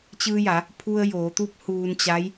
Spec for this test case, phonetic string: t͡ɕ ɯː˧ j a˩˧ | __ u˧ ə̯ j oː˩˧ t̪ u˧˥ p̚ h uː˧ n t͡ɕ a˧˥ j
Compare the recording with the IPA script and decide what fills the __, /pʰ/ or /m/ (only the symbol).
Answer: pʰ